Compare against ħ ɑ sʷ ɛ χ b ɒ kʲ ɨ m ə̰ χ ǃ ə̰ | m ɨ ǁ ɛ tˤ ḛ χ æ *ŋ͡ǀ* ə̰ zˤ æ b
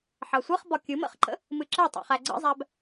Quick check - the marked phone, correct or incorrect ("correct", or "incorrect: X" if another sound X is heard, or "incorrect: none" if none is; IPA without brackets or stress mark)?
incorrect: ɡ͡ǀ